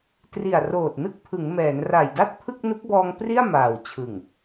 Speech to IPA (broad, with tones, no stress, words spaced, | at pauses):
tri˨˩a̯roː˨˩t̚nɯ˦˥k̚ pʰɯ˩˦ŋmɛː˩˦nra˨˩jda˥˩t̚ pʰɯ˥˩k̚ nu˦˥k̚bɔː˧ŋpri˥˩a̯ maː˨˩wt͡ɕʰɯ˨˩ŋ